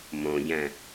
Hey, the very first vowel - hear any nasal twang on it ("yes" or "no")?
yes